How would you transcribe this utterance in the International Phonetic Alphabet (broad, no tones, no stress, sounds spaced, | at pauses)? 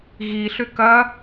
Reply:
ɣ i ɬ ʏ k ɐ